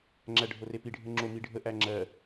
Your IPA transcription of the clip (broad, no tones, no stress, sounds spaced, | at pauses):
ŋ͡ǁ æ ɖʱ o r e p i ɖʱ ə ŋ͡ǁ o m i ɖʱ ə ʔ æ ŋ͡ǁ ɜ